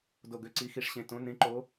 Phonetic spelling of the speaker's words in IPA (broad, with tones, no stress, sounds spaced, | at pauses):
d o˨˩ ɡ ø˨˩ ǀ i˨˦ x i˨˦ ʂ ɕ ẽ˨˩ t õ˨˦ n ẽ˨˦ ǃ o˨˦